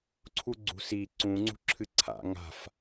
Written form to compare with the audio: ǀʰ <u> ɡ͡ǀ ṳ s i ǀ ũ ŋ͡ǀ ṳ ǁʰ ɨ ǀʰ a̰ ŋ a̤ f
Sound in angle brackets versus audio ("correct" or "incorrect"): correct